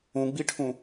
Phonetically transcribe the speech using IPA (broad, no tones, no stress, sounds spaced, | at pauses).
ũ ɡ͡b i ʈʰ ũ